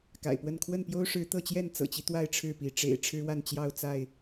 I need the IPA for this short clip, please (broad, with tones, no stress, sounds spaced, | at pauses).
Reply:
k a̰˨˩ ɪ̯ p w ə˥˨ n kʰ w ə˥˨ n p j o˦ ʊ̯ ʂ ɻ̩˨˦ t̪ ɤ˥˨ t͡ɕ j ɛ˥˨ n t͡s ɤ̰˨˩ t͡ɕ i˦ t̪ w a˥˨ ɪ̯ ʈ͡ʂʰ ɻ̩˥˨ p i˨˦ ʈ͡ʂ ḛ˨˩ ɪ̯ ʈ͡ʂʰ ɻ̩˦ w a˥˨ n t͡ɕ j ɑ˥˨ ʊ̯ t͡s a˥˨ ɪ̯